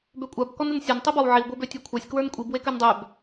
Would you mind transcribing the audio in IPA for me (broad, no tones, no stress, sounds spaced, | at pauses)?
b ø kʷʼ a b k ɔ n ə n sʲ ɒ n tˤ i b ɒ w ʕ i w ɡʷ e b ø tʲ ə˞ kʷʰ a sʲ k w ə˞ n kʷʼ i b w e k ø n dˤ ø b